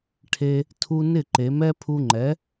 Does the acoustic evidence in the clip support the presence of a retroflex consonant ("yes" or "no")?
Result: yes